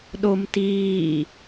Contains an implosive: yes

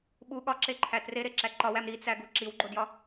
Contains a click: yes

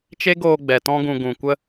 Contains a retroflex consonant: no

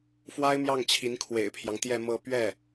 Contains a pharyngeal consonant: no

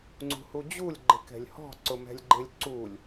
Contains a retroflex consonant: no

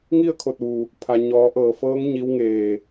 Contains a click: no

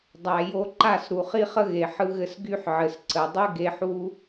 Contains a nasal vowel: no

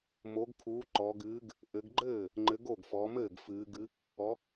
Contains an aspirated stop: yes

